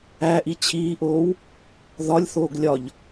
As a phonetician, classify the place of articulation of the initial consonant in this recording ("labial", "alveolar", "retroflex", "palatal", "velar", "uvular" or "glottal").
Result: glottal